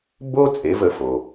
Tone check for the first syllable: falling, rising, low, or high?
high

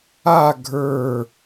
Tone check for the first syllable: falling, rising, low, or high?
falling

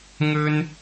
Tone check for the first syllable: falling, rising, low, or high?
high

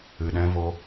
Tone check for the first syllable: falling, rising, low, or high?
low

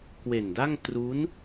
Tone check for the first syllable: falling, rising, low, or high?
low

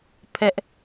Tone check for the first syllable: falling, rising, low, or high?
high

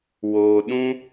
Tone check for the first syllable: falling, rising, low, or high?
low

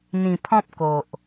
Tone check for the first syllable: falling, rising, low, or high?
low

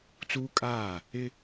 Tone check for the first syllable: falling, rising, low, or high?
high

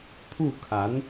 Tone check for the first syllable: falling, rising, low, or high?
falling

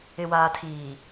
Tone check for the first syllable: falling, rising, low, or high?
low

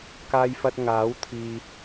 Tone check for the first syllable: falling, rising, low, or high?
high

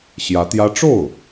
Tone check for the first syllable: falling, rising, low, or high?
rising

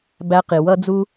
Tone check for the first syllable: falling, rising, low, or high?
rising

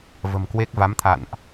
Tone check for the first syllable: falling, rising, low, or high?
low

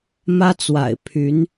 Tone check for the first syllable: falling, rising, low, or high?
high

